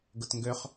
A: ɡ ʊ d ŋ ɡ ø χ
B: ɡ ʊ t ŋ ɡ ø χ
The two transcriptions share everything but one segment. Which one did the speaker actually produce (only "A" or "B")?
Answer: B